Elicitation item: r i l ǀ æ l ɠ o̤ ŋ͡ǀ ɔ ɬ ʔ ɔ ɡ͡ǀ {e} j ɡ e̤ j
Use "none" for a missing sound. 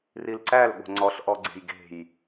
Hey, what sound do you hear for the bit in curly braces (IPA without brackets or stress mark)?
e̤